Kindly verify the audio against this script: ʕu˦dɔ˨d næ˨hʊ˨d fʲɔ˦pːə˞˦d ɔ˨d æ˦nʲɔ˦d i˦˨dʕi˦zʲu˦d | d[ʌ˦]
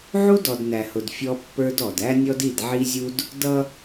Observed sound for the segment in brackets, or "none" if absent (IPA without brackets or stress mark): ʌ˦